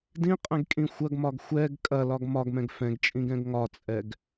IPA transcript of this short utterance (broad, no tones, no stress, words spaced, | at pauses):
dĩqʼɛ̃ɡkʼĩ xʷɐɡmɒɡ xʷɛɡ kʼɐlɒɡ mɒɡmɛ̃ɡ fɛ̃ɡt͡ʃʼĩɡɛ̃ɡ ŋɒt͡sʼɛɡ